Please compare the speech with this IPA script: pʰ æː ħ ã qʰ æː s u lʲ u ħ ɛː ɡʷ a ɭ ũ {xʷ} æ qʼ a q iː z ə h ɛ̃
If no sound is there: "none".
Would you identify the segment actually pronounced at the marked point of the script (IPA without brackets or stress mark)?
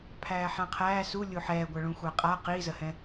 xʷ